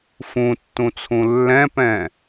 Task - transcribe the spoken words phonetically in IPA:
f ũ tː ũ t͡sʰ ũ lː ɛ̃ p ɛ̃

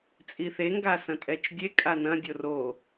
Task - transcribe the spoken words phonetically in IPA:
t͡sʼ i θ e ŋ ɡ a s ɐ̃ tʼ ɛ t͡ʃ dʲ e kʼ a n ɐ̃ dʲ o r o

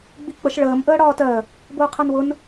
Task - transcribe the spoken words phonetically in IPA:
ɡ͡b i k͡p ə ʃ ɭ əː m ʔ əː ɽ ɒː t ɜ | b ʊː qʰ ɜ n w ʊ n

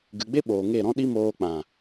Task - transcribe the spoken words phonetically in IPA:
ɡ ɨ˨ ɡ͡b e˦ ɓ oː˨ ŋ e˦˨ ɾ ɔ̃˦ ɗ i˦ m oː˧ k͡p ã˨

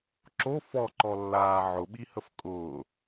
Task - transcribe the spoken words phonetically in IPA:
ǁ o f ɔ ǃ ɔ lː aː ʕ ʊ ɓ i h ə f kʼ ʊː

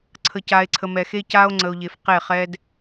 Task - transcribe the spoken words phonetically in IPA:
ǀʰ ə˨ c a˨ e̯ ǀʰ ə˨ m ɛ˨ x e˦ c a˦ o̯ ŋ͡ǀ ə˨ o̯ ʎ e˨ f q e˦˨ χ ɛ˦ d

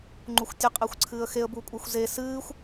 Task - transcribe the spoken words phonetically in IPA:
ŋ͡ǃ u xʷ tʲ ɨ qʼ e xʷ ǀʰ ɨː ə̯ x e ə̯ b u kʷʼ e xʷ z e s ɨː xʷ

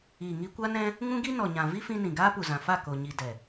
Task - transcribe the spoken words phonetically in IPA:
iː˨ ŋ i˧ kʷ a˦ n ɛ̃˦ | ŋ ũ˦ ɡ i˦ n ɔ˨ ɲ ã˨ v i˦ f ĩ˧ n ĩ˨ ɡ aː˦ p u˨ z ã˨ f a˦˨ k o˨ ɲ i˨ d ɛ˨

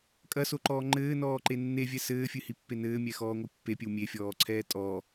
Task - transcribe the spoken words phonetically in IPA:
kʼ ɐ s o ǃ ɔː ŋ͡ǃ ɘː n ɔː ǃ e nː e vʲ ɛ s ɘː fʲ ɨ h i pː e n ɘː mʲ ɛ x ɔː ŋʷ ɨ pː e pʲ ɘ w mʲ e fʲ ɔː ǀʰ ɛː tʼ ɔ

